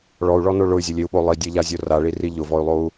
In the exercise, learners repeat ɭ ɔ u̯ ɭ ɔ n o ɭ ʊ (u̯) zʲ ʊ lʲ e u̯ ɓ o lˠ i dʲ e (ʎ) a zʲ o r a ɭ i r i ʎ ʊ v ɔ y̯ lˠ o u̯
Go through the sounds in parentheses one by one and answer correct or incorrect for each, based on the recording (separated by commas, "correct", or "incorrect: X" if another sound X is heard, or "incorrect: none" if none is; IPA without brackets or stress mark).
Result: incorrect: y̯, correct